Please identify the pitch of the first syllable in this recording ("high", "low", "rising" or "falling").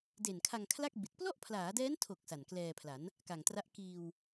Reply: low